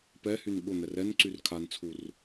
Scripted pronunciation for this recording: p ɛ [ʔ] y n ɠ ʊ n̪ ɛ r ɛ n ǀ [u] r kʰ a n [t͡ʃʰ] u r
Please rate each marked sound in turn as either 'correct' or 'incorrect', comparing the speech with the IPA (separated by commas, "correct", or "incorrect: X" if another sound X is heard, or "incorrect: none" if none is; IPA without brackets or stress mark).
incorrect: h, incorrect: y, incorrect: t͡sʰ